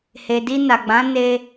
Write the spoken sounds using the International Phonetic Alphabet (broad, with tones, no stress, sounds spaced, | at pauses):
h e˨ d i˧ n a˨ ɡ͡b ã˨˦ n e˦